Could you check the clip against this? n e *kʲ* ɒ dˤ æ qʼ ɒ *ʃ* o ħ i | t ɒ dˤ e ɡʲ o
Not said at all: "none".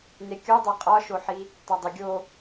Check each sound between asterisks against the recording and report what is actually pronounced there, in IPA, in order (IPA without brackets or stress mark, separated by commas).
kʲ, ʃ